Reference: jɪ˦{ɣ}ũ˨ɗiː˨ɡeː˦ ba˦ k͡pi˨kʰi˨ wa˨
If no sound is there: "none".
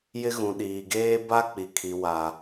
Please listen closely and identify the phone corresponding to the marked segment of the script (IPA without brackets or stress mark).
ɣ